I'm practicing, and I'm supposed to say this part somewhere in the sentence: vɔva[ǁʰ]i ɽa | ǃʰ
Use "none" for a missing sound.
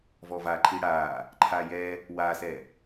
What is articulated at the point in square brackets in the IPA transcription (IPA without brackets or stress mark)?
ǃʰ